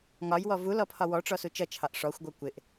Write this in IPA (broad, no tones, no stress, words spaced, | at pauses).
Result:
ŋɒjwɔ vulɔ pʰɒwɔʈ͡ʂɔ sut͡ʃʌt͡ʃʰɑʔ ʂɔxʷɡʷʌ kʷɪʔ